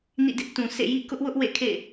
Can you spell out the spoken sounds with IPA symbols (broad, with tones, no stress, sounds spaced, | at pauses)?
n ḭ˦˨ d ɪ˦ ʔ t ũ˨ sʰ ḛ˦˨ j ḭ˦˨ k ʊ˦ ʔ w ʊ˦ ʔ w ḛ˦˨ kʰ ḛ˦˨